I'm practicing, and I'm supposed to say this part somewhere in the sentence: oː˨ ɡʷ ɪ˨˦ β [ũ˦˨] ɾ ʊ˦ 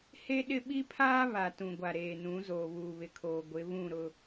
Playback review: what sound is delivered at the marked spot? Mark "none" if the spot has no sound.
ũ˦˨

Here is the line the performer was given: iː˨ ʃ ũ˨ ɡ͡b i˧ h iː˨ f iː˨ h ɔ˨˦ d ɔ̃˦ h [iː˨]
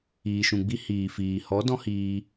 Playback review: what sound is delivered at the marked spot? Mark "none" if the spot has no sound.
iː˧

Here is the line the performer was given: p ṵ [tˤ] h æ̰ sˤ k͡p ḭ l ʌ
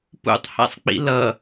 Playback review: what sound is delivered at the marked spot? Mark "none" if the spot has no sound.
tˤ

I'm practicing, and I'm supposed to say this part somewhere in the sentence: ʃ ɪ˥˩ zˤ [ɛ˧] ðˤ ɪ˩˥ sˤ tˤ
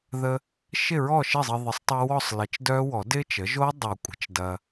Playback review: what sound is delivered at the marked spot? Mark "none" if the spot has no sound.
ɪ˧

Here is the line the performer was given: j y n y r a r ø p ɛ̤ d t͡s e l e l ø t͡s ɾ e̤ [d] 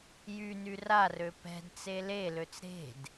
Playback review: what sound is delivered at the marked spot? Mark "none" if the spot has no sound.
d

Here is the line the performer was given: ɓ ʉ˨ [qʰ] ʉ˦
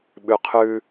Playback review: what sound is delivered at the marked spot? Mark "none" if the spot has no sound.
qʰ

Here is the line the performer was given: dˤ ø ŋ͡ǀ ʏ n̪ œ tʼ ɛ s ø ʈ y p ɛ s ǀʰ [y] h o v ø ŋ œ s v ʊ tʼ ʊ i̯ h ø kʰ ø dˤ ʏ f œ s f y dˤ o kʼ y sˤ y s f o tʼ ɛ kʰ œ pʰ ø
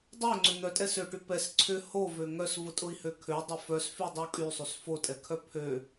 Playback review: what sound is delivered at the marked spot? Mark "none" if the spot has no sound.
ʏ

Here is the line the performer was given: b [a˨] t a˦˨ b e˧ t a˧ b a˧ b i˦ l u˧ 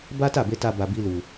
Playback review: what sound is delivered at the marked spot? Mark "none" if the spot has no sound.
a˦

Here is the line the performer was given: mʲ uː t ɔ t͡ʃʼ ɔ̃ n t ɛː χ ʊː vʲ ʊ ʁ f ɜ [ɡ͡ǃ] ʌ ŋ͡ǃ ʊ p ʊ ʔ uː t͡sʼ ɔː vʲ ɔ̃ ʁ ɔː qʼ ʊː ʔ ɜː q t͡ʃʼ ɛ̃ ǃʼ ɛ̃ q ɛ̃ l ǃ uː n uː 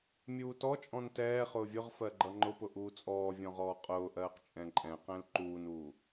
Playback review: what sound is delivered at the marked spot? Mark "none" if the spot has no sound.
ɡ͡ǃ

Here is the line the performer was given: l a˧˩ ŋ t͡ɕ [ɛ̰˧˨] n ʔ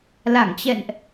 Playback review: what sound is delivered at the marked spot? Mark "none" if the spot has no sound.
ɛ̰˧˨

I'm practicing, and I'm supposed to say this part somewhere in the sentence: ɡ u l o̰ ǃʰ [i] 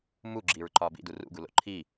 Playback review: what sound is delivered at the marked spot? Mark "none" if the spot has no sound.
i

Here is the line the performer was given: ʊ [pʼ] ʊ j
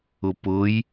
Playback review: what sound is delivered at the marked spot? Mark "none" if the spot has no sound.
p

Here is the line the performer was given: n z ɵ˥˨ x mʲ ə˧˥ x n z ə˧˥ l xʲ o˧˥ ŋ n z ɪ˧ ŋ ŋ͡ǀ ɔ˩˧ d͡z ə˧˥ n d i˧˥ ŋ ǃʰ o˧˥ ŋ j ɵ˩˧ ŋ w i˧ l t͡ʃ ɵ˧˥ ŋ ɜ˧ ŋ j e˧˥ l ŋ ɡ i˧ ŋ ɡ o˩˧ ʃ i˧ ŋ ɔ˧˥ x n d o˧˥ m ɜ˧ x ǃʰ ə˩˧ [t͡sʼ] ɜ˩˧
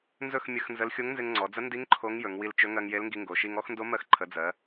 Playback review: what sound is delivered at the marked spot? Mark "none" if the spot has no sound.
d͡z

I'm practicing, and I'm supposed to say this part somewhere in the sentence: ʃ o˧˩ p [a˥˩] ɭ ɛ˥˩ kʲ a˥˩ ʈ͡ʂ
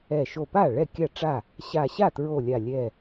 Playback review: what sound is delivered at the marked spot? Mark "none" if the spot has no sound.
a˥˩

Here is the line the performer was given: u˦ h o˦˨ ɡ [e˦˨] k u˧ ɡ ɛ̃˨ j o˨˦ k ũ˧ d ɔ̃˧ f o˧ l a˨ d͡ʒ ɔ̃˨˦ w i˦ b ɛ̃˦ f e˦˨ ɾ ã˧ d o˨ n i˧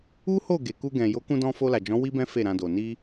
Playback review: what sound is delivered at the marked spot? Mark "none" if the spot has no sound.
e˨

